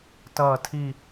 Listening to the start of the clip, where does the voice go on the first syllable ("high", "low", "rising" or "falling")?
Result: falling